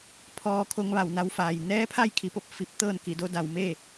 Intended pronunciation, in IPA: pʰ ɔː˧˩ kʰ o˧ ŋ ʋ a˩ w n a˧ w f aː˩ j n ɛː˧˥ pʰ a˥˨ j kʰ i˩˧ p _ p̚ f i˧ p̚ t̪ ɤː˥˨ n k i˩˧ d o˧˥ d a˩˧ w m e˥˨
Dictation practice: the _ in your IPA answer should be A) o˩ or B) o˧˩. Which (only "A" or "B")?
B